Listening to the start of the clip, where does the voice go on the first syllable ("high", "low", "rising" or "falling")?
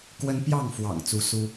high